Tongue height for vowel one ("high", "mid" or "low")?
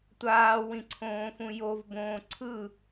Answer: low